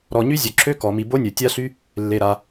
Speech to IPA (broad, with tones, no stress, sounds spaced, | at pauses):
ɾ ɔ˨ ɲ y˦˥ zʲ œ˨ ǁʰ ø˦˥ k ɔ˨ m i˨ b o˦˥ nʲ œ˨ tʲ a˦˥ ɬ y˦˥ | lː e˨ ɾ a˨